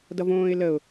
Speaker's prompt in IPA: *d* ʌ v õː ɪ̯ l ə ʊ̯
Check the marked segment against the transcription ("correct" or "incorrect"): correct